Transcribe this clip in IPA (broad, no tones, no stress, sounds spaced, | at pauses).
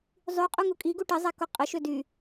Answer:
zˤ y qʼ u ŋ u kʼ i ɡ u ʈ i zˤ ɛ k o qʼ ə ʃ ø d y